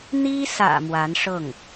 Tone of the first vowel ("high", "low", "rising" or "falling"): high